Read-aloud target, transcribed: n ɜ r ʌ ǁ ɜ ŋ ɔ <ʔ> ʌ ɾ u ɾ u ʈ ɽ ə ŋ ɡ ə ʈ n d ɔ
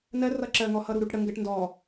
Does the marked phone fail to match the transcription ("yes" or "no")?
yes